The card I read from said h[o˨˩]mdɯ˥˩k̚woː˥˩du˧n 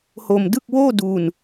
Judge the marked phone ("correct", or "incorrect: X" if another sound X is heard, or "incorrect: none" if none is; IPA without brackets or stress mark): incorrect: o˧